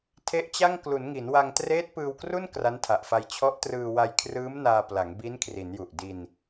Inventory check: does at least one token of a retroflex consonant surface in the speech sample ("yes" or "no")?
no